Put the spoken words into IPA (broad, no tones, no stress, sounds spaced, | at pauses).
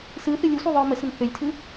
s ɯ θ ɨ lʲ ɯ sʷ ɯ ðˤ ə˞ m ə s ɾ ə n θ ø lʲ tʰ ɯ